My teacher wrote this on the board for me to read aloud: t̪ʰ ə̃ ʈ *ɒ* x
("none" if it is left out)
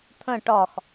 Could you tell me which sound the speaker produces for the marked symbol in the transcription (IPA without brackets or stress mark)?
ɒ